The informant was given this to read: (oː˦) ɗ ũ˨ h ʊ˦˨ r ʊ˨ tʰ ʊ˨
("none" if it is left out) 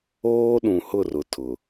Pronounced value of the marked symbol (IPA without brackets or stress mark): oː˦